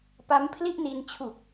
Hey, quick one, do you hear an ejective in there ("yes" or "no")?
no